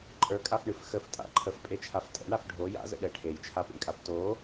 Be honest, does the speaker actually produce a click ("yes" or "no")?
yes